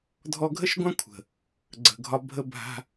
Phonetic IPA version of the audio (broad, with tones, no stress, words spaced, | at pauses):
dʱɔ˧ɡʱə˦ʃɡʷã˦ kʷʰə̤˨ | ɡ͡ǀə̤˨ɡʱɒ˧bʱə˦bʱa̤˦